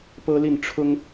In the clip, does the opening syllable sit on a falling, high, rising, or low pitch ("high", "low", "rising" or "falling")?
high